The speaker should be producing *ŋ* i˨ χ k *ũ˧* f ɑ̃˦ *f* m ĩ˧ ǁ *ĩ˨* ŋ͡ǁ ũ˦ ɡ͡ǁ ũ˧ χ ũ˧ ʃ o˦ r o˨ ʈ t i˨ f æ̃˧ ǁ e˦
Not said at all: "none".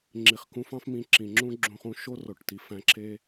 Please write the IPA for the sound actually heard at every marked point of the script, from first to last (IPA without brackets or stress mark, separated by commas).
ŋ͡ǁ, ũ˧, f, ĩ˨